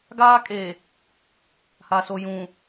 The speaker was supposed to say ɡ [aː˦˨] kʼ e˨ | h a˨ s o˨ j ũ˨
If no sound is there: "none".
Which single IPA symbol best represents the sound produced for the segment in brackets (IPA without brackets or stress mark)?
aː˦